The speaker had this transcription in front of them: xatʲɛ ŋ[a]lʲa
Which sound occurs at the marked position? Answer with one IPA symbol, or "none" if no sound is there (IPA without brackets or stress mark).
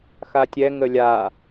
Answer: ə